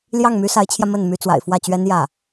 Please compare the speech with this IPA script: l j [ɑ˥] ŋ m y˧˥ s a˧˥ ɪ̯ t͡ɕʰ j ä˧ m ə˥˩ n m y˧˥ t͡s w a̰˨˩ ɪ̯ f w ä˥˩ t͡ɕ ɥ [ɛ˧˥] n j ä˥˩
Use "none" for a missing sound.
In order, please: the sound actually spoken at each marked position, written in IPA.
ɑ˥˩, ɛ˥

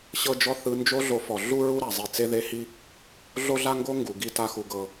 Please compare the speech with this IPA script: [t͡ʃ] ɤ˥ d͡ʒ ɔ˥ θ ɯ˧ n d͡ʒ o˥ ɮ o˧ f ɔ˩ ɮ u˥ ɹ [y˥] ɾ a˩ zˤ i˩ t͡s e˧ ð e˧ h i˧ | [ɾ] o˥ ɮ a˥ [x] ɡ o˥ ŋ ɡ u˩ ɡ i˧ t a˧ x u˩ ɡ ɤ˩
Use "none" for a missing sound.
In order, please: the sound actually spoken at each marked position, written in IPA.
ɕ, u˥, ɮ, ŋ

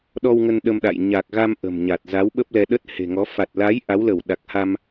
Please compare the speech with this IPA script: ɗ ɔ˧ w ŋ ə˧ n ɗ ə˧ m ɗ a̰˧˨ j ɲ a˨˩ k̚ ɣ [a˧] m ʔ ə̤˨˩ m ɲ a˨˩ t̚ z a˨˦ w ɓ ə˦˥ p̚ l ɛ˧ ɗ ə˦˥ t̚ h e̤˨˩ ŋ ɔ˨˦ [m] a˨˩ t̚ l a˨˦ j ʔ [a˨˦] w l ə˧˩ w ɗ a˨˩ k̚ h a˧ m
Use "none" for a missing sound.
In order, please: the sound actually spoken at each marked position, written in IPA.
a˧, f, a˨˦

